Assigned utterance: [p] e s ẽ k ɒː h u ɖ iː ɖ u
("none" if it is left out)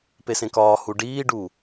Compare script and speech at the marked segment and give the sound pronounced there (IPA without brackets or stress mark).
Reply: p